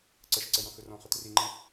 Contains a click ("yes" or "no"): yes